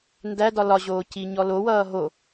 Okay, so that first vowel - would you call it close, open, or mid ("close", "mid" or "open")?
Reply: open